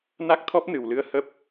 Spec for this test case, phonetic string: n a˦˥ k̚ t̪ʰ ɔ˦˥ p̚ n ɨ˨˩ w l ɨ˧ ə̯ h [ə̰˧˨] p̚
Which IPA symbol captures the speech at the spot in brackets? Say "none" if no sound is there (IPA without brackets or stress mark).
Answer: ə˦˥